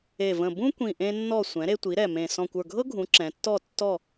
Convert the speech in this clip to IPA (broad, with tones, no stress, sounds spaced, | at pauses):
e˨˩ v ə̃˨˩ b ũ˦ kʷ ĩ˨˩ ʔ ẽ˦ nː ɔ˦˨ sʷ ɛ̃˩˥ ɾ e˦ tʷ i˩˥ ɾ ɛ˨˩ m ẽ˨˩ s ɔ̃˨˩ kʷ ə˞˨˩ ɡʱ ɤ˦ ɡʱ ũ˩˧ ǁ ɛ̃˩˧ tː ɔ˦˨ tː ɔ˦˨